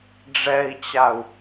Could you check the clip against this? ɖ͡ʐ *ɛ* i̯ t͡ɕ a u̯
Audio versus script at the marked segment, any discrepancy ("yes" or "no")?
no